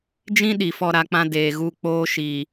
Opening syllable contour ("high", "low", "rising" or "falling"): high